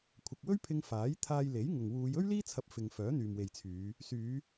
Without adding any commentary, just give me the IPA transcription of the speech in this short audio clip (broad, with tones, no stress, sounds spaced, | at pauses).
kʷʰ ɐ˨ k̚ w ɵ˥ ɥ pʰ ɪ˧ ŋ f aː˨˥ j t̪ʰ aː˧ j l e˨˥ j ŋ ʊ˨ ŋ w uː˨˧ j ɵ˥ ɥ l iː˥ t͡sʰ ɐ˧ p̚ f ɪ˨ ŋ f œː˨˥ n̪ yː˨ m w e˨ j t͡sʰ yː˨˧ | s yː˨˧